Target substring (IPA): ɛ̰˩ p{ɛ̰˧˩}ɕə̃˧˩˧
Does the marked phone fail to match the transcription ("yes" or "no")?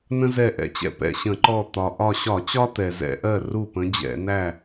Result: no